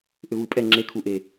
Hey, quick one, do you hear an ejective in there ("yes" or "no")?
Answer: yes